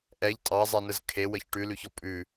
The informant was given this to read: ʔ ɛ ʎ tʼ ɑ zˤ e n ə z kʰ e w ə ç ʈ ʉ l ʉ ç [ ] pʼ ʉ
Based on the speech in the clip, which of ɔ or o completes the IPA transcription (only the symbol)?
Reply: ɔ